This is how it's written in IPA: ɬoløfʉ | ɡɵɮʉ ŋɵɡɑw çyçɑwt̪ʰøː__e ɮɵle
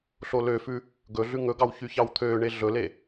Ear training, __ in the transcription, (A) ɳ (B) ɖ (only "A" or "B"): A